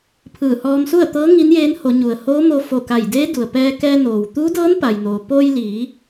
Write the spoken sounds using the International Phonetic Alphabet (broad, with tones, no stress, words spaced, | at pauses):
pʰɯː˧˩hɔː˧msu˥˨ə̯t̪ɤː˧˥ ŋi˧˥njeː˧˥n ho˩˧ɲu˩ə̯ hoː˧˥mo˧ fo˧˩ka˧˩jdeː˧˥ du˩ə̯pɛː˧kɛː˧ noː˩wt̪uː˧˥dɤː˧˥n pa˩j noː˩ poː˧jliː˩˧